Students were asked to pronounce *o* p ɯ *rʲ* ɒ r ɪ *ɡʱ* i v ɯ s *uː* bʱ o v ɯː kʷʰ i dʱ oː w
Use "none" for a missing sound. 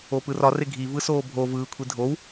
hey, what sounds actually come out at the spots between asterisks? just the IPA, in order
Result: o, r, ɡʱ, oː

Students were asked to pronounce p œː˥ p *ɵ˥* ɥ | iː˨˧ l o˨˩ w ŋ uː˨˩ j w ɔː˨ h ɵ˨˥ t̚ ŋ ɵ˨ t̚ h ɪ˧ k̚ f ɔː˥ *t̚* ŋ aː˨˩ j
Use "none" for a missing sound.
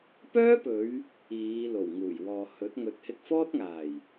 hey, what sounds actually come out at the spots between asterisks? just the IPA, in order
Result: ɵ˨˧, t̚

